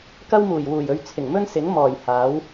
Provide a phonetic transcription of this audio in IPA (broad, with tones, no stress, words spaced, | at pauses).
kɐ˥wmuː˨˩jwuː˨˩jɵ˧ɥ t͡sʰɪ˨˩ŋmɵ˥n sɪ˨˥ŋmɔː˨˩j haː˨˥w